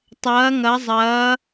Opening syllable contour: rising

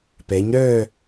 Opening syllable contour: rising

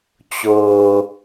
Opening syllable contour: low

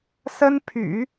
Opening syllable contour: high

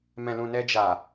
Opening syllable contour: low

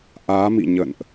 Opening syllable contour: rising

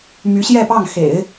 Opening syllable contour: rising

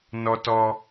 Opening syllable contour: high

